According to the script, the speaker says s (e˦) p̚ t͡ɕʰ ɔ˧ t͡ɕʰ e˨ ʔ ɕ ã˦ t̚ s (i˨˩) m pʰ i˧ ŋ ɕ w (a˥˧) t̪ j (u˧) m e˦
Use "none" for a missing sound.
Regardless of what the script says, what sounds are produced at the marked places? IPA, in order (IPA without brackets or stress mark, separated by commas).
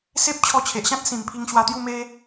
e˦, ĩ˨˩, a˧, u˥˧